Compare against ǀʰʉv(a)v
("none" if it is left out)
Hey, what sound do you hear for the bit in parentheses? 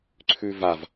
a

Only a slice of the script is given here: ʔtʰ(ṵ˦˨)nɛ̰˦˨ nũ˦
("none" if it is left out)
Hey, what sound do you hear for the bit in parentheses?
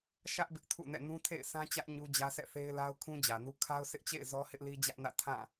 ṵ˦˨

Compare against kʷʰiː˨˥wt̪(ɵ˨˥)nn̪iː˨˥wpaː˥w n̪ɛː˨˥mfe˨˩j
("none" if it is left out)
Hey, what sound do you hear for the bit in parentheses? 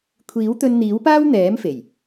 ɵ˧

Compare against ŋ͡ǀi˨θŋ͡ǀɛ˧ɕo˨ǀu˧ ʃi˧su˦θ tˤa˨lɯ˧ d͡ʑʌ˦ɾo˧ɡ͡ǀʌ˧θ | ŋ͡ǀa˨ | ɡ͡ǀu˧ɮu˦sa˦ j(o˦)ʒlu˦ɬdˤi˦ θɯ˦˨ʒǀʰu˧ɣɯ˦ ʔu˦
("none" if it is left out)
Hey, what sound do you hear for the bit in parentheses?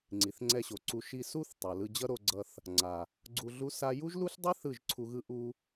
u˦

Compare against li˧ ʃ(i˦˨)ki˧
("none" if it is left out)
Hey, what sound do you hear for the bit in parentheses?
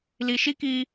i˦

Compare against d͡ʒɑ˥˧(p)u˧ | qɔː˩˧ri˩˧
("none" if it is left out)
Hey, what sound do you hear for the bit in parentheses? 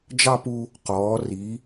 p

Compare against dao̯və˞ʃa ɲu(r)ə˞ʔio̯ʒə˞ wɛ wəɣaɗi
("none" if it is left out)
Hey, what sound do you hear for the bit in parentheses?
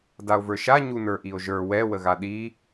n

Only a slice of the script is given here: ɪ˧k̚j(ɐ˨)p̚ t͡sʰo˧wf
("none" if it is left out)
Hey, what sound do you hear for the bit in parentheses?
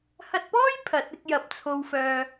ɐ˨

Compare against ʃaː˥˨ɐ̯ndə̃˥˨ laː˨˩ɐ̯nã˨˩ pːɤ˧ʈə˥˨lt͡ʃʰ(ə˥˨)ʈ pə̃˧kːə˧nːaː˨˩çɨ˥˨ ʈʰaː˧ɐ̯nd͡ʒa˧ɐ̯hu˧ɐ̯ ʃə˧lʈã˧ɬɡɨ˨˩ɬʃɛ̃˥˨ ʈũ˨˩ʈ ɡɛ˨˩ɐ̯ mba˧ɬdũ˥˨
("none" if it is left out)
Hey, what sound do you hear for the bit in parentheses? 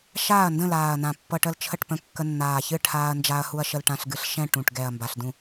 ə˥˨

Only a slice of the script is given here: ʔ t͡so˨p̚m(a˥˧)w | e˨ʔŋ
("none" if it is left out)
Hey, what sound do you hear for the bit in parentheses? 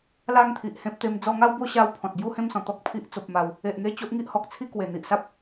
a˨˩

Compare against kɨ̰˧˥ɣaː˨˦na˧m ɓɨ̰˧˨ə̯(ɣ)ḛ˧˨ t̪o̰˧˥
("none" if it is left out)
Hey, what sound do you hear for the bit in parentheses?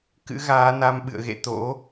ɣ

